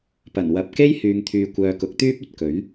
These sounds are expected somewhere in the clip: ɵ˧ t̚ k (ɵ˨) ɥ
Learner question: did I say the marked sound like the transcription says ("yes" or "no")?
no